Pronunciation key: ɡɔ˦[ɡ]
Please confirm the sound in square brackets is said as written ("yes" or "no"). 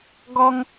no